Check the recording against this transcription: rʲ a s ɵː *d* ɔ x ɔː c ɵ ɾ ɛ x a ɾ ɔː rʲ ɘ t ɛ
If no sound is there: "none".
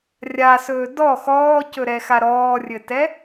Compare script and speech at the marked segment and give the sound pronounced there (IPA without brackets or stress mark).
d